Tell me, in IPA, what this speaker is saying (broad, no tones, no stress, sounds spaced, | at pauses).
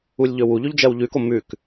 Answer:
u lʲ ʎ ɵ w u ʎ ʉ ʎ d͡ʒ ɜ w ʎ ʉ k o m ʉ k